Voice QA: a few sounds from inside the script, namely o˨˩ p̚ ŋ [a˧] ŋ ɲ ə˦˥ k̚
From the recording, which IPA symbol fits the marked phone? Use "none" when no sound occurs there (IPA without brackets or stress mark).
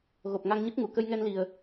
a˧